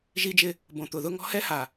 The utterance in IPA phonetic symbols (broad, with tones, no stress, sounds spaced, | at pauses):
ʒ i˦ d͡ʒ ɪ˦ | b õ˨ t̪ ʊ˨ ð ʊ˦ ŋ ɔ̤˦ h ɛ˦ h a˨